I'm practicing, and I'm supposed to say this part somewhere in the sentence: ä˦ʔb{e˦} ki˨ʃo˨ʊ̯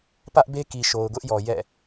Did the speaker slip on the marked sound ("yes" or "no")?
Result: no